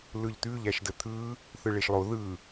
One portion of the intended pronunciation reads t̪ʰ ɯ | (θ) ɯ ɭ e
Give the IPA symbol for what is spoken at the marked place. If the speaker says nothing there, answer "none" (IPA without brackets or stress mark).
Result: θ